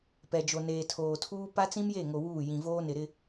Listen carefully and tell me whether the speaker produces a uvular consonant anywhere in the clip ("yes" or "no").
no